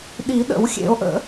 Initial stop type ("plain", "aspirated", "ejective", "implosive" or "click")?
implosive